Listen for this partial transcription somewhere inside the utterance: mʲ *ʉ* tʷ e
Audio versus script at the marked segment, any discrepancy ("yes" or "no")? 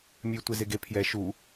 no